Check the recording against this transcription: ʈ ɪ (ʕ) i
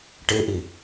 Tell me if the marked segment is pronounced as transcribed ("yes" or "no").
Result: no